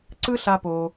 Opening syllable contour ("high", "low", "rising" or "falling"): high